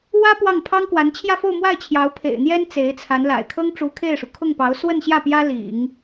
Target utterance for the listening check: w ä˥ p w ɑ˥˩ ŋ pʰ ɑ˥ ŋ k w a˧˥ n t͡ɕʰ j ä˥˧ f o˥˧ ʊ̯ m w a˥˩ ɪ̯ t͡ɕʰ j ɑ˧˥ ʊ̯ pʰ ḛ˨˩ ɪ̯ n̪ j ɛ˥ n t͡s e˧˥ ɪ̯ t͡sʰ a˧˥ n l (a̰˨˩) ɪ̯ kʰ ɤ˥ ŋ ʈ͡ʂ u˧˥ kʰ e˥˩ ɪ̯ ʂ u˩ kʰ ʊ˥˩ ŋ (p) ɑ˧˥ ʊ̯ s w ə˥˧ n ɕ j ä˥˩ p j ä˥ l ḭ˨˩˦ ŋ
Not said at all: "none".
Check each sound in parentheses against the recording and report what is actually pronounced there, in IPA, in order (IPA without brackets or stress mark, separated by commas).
a̰˨˩, p